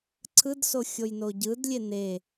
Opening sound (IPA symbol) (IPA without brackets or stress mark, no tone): ǀʰ